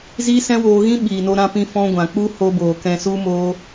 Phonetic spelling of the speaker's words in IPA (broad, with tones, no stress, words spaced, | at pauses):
ziː˦sɛ̃˦woː˧ɣĩ˦ ɓiː˨no˧ ɾã˧pĩ˧ fɔ̃˧ɡʷã˨ k͡pu˦ho˧boː˨ kɛ̃˨su˧ moː˧